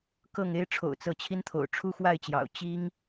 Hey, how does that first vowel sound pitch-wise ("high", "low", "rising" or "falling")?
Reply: falling